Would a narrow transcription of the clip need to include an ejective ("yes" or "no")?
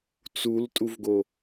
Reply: yes